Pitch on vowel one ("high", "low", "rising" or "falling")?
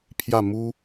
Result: falling